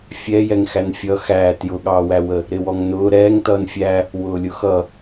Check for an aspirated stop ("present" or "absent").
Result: absent